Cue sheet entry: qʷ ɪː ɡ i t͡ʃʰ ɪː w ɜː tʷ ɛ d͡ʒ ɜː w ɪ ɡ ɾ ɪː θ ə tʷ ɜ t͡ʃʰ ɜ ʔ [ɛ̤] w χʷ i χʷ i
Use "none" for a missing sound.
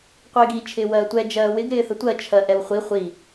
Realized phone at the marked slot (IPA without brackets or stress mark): ɛ